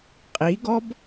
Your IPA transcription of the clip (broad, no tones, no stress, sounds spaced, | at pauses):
qʼ i ɡ ɔ b